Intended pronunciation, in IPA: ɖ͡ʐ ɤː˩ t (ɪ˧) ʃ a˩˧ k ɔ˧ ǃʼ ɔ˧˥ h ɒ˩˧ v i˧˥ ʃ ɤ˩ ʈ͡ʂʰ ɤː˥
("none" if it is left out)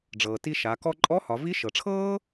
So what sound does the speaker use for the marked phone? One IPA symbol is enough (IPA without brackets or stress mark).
i˧